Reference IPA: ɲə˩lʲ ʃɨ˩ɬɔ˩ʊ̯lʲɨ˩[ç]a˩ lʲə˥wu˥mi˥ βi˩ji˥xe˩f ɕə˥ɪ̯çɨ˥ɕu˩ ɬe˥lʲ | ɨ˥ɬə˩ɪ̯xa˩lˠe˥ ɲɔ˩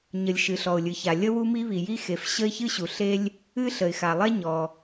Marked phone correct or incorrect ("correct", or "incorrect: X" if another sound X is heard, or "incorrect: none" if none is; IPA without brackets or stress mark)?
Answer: correct